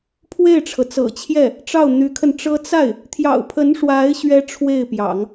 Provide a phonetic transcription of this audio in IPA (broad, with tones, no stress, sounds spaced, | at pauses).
pʰ w e˥˩ ɪ̯ ʈ͡ʂʰ ɤ˩ t͡s ɤ̰˨˩ t͡ɕʰ j ɛ˥˩ | ʈ͡ʂ ɑ˥˩ ʊ̯ n̪ y˧˥ kʰ ə˧ n ʈ͡ʂ ɤ˥ t͡s a˥˩ ɪ̯ | t̪ʰ j ɑ̰˨˩ ʊ̯ pʰ ə˧˥ n ʂ w a˧˥ ɪ̯ ɕ ɥ ɛ˥ ʈ͡ʂʰ w e˥˩ ɪ̯ p j ɑ̰˨˩˦ ŋ